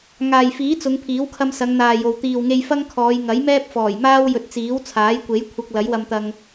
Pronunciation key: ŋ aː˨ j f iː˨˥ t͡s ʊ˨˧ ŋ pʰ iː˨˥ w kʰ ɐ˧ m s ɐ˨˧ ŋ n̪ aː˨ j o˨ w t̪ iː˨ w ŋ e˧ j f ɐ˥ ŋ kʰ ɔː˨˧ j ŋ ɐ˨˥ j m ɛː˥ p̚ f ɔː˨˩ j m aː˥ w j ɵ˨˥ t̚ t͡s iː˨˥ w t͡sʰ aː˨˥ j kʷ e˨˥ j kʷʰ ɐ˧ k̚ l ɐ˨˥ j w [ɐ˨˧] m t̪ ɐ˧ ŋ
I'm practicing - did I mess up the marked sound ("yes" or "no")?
yes